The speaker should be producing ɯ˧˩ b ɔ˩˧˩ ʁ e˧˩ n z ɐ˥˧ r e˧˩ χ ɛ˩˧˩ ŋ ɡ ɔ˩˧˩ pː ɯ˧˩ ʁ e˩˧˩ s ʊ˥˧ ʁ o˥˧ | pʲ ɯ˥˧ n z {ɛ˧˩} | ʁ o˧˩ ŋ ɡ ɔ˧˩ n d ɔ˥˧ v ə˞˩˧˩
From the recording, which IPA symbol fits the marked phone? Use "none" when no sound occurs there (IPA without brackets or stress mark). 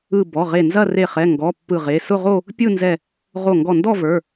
ɛ˧˩